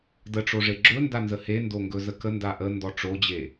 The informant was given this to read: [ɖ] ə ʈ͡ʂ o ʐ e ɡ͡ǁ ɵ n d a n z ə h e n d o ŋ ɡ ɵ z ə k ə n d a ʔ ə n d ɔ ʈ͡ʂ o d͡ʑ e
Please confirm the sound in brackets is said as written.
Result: no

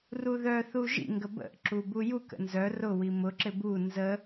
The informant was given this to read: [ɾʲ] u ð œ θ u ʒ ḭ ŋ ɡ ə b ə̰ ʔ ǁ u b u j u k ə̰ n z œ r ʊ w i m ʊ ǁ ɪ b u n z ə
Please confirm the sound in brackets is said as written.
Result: no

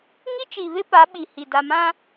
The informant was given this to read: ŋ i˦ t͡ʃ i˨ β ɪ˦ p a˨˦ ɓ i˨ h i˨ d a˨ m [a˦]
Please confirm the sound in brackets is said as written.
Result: no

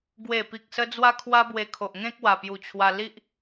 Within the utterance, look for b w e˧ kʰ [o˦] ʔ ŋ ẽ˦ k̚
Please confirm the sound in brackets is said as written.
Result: no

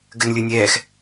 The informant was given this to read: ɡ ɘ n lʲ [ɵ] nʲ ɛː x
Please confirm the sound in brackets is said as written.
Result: yes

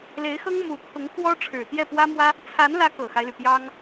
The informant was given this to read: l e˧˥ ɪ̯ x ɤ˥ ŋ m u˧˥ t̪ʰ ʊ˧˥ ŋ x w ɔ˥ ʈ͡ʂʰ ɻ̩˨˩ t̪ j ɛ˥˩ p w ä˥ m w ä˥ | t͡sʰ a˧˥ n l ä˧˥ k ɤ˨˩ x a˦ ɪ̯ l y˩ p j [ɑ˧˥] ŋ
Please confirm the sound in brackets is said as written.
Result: no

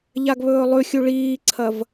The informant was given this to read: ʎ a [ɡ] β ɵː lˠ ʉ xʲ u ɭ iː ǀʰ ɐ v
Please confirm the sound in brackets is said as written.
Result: yes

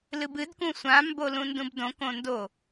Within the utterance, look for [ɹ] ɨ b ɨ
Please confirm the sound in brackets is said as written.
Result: no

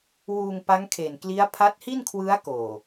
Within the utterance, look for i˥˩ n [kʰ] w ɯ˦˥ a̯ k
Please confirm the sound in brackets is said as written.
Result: yes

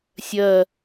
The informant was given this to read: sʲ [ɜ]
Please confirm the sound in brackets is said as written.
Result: yes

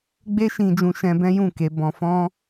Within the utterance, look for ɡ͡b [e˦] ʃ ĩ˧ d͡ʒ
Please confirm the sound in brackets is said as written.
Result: yes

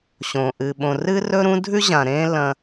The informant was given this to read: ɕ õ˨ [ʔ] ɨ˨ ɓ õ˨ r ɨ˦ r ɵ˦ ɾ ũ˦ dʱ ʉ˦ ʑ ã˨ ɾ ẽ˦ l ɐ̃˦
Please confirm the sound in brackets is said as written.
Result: yes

